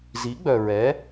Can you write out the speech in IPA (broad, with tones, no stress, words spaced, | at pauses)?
zi˨˥ɡ͡bœ˨ ɹɛ˨˥